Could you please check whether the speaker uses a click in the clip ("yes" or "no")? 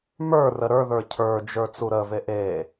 no